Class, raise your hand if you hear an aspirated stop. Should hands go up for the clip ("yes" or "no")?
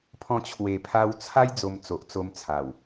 yes